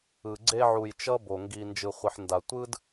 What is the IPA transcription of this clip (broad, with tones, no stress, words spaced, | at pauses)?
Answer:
ɯ˨ ɡ͡ǀe˧ʕu˨j t͡ʃʌ˦bo˨ ŋɡi˨nd͡ʒɯ˨χʷi˨ħ nda˨tʷɯ˦d